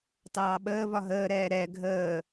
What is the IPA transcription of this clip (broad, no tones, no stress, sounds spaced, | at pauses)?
t ɑː ɓ əː v ɒ ɦ əː ɾ ɛː ɾ ɛ ɡʱ əː